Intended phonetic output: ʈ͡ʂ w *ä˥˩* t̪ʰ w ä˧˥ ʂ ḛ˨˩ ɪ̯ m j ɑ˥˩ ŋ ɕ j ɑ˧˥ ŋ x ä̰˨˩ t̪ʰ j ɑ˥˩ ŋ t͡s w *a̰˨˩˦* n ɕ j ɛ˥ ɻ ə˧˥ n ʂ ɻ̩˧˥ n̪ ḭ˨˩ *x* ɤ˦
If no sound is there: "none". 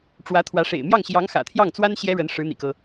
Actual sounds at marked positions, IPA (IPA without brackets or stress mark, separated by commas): ä˧˥, a˥, k